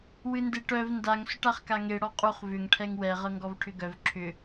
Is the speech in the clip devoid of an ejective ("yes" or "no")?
no